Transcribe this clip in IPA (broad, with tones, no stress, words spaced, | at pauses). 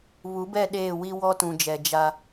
βu˨˦bɛ˦˨ ɗeː˦˨ wi˦wɔ˦tũ˨d͡ʒɛ˨ d͡ʒa˦